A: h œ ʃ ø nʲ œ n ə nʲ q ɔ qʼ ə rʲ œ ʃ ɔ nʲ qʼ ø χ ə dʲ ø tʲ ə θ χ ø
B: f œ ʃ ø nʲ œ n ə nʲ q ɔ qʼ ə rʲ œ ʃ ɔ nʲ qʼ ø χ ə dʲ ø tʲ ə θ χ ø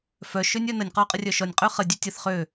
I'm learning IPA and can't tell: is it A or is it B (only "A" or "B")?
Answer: B